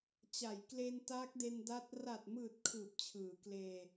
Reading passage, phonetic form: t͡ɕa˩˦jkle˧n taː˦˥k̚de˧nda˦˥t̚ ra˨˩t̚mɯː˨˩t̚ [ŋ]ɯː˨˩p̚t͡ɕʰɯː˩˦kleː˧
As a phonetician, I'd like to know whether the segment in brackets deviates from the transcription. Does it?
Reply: yes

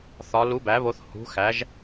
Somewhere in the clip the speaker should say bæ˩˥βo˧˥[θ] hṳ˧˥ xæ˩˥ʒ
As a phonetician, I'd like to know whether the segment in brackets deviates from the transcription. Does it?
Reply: no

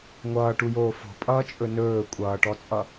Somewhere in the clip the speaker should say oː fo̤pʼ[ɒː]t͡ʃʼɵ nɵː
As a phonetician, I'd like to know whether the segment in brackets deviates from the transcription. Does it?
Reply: yes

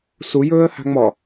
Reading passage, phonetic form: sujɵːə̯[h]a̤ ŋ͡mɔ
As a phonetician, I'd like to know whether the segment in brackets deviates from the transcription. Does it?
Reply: no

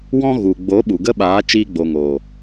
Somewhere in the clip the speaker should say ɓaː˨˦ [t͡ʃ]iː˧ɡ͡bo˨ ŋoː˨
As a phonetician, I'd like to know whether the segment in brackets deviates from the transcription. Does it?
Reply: no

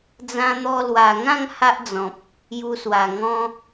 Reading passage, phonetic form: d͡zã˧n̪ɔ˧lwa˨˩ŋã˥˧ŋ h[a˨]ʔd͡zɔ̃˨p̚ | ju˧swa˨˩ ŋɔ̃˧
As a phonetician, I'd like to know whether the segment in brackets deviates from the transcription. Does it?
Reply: yes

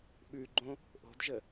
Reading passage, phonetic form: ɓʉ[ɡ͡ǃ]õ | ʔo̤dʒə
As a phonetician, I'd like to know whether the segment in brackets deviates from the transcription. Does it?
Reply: no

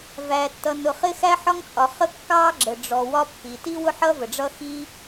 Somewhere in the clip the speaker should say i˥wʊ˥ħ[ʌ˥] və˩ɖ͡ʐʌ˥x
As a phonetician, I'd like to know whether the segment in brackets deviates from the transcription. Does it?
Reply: no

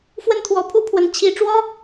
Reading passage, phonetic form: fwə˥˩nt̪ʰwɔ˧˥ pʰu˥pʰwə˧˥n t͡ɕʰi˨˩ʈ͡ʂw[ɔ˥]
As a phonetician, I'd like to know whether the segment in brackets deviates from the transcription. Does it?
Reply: no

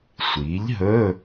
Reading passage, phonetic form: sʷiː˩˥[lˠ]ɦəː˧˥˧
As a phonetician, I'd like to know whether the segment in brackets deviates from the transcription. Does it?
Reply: yes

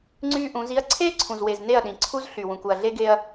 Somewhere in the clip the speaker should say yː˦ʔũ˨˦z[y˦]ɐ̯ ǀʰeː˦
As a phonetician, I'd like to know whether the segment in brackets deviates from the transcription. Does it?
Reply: yes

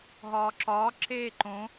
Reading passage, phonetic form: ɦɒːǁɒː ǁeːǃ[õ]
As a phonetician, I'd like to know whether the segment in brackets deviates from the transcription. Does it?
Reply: no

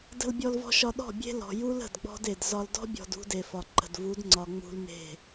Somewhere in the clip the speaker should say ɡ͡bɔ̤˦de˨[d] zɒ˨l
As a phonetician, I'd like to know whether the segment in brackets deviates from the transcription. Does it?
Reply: no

